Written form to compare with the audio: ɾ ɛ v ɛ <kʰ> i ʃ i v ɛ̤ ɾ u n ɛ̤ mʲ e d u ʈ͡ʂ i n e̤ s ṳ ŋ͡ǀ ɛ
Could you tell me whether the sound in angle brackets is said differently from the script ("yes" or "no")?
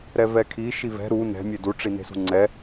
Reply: no